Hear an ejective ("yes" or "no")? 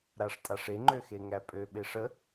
yes